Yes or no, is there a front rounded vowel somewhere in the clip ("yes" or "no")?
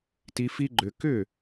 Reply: yes